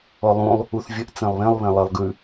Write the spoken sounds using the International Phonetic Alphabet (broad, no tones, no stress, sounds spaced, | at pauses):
ɔ lˠ ũ lˠ | u θ vʲ ə ʔ t͡s ẽ lˠ β ẽ lˠ β ẽ lˠ ɜ lˠ ɡ ʉ